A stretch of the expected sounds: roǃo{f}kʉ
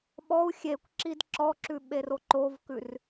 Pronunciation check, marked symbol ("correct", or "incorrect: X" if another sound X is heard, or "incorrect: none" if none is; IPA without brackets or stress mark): incorrect: v